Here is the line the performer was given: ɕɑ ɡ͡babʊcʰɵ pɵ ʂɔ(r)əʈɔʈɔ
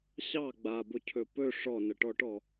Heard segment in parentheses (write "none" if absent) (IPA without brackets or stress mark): n